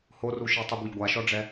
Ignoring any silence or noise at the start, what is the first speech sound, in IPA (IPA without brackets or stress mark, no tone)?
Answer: h